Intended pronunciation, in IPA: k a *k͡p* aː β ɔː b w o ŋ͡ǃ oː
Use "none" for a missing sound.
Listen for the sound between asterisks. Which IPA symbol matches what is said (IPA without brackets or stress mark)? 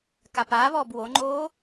p